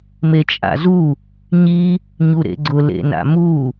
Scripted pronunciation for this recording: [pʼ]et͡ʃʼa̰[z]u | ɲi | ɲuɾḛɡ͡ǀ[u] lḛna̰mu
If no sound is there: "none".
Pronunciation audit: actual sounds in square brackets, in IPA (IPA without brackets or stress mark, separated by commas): m, z, ʊ